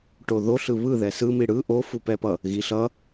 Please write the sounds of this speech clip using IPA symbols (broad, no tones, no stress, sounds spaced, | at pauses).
ʈ o ð o ɬ ɯ β ɯ ð ɛ s ɯ m i ɽ ɯ ʔ o f u p ɛ p ʌ | ɣ i ɬ ʌ